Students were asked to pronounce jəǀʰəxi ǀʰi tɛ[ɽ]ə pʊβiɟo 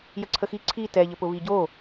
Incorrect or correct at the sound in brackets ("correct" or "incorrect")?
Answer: incorrect